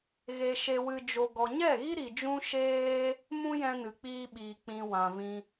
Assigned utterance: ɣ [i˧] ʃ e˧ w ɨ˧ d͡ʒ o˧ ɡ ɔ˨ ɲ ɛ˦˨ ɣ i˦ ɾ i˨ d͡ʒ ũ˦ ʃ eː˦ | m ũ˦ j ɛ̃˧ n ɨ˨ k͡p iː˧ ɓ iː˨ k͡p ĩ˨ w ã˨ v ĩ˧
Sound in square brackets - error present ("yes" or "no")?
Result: yes